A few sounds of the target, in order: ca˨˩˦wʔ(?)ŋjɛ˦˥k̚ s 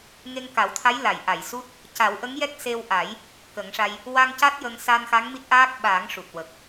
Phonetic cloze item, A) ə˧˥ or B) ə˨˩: A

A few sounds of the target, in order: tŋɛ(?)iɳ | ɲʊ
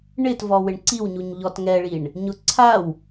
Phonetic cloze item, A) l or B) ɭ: B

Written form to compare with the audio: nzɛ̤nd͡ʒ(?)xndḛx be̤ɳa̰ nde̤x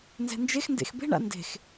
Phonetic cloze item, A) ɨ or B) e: B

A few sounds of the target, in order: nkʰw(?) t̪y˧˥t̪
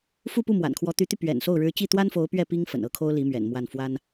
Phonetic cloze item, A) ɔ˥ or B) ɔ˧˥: B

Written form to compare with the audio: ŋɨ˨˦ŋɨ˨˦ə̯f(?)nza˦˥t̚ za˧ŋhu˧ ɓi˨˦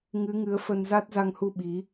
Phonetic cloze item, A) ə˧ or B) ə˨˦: A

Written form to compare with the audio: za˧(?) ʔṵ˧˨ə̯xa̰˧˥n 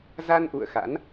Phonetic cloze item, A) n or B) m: A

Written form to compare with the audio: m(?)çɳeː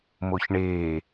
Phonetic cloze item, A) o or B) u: A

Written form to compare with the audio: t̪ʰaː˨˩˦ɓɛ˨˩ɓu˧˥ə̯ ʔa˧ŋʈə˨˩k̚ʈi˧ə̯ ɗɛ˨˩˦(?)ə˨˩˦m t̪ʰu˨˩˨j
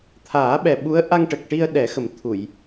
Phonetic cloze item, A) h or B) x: B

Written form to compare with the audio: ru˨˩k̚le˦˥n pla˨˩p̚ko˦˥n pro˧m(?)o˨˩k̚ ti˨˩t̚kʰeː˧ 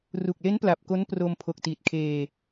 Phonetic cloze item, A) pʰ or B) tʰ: A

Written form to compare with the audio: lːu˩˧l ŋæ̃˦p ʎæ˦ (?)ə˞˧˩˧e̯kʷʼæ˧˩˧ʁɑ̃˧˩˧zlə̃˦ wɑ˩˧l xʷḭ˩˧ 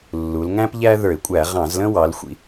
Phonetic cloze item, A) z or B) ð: B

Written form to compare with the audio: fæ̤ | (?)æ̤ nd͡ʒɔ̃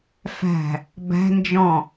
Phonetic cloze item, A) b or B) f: A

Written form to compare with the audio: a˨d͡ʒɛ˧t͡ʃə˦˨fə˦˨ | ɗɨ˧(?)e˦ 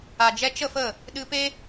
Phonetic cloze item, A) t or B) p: B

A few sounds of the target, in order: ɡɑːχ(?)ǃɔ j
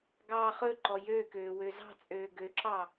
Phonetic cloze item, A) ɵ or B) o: A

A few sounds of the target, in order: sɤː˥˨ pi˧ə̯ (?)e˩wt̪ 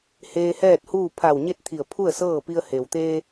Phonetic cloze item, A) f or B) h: B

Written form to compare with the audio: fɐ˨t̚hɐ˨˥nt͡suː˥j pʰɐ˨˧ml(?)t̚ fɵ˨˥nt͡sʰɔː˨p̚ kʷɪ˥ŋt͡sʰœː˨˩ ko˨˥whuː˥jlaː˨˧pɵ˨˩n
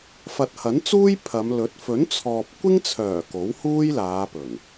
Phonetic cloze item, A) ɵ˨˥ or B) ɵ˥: A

